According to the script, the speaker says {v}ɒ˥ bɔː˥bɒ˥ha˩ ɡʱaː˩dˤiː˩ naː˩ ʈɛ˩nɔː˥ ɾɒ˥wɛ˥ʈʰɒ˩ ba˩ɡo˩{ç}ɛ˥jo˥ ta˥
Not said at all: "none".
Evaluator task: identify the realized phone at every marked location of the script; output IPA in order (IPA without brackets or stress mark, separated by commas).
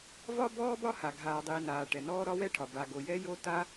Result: v, j